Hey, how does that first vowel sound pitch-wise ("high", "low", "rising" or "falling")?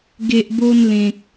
low